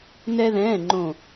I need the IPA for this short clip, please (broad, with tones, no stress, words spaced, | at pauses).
nɛ˥ðɛ̃ː˧˥˧ŋ͡ǃõ˦˨